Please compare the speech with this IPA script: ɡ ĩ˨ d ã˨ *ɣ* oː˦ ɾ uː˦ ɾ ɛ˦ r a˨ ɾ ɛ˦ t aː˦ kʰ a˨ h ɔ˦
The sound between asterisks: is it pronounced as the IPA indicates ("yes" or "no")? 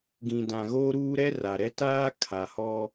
yes